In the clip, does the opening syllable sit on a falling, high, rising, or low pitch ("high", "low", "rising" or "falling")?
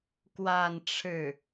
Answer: falling